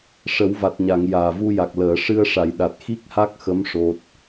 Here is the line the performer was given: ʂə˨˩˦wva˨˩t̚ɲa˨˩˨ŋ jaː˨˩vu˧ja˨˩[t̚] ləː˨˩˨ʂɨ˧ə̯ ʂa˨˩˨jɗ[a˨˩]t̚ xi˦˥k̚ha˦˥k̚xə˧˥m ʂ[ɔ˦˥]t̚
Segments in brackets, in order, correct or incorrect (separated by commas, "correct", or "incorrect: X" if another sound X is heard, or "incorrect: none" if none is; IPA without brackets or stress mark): incorrect: k̚, correct, incorrect: o˦˥